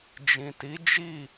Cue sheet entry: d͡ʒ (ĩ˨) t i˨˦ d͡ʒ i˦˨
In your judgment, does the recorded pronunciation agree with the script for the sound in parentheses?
yes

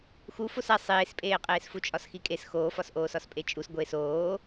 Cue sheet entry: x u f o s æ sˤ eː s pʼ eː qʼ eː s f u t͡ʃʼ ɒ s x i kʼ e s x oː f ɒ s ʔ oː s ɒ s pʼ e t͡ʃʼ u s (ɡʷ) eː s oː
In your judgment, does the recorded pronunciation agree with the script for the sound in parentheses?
yes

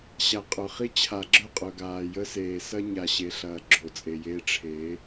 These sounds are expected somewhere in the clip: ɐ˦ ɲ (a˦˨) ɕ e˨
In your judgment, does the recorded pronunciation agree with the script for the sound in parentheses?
no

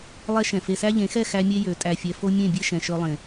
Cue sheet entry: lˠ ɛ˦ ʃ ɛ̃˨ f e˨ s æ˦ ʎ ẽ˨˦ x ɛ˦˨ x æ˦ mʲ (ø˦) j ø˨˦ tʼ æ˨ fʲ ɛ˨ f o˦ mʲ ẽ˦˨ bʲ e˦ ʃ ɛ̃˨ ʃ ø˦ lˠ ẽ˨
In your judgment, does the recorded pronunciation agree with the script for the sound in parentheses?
no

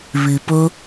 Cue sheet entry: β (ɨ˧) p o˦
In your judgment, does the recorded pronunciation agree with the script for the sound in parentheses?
yes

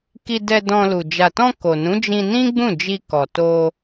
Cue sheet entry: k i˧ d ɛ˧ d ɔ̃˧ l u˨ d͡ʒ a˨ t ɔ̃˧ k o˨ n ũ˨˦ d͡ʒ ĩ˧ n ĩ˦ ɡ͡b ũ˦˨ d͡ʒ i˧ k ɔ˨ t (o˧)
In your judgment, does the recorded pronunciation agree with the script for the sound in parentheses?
yes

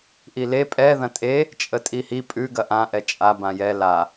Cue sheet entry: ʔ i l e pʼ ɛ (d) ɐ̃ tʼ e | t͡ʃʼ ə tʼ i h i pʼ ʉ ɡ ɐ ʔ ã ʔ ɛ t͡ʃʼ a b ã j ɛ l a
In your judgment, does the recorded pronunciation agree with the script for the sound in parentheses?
no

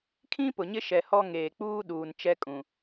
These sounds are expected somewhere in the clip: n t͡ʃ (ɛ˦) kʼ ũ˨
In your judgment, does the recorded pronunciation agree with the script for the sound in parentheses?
yes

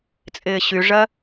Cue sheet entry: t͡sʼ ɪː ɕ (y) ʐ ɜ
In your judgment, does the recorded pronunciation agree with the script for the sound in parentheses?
yes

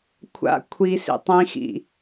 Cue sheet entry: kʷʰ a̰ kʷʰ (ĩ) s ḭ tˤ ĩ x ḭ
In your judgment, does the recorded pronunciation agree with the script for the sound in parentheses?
no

